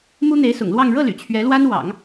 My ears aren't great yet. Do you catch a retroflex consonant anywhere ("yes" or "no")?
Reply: yes